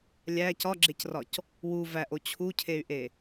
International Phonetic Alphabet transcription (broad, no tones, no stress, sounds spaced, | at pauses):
lʲ æ c ɒ ɡ͡ǁ e c r ɒ c | w u v æ ʔ o t͡ɕʰ u cʰ e y̯ ʔ e